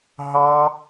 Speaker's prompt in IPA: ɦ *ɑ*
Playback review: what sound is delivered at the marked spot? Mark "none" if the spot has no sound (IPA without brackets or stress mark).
ɑ